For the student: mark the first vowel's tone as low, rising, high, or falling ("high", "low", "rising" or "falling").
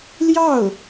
falling